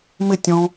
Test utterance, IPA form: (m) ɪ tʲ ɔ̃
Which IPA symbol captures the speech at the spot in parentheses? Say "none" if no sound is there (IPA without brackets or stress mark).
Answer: m